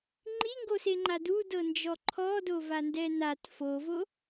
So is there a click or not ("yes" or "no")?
yes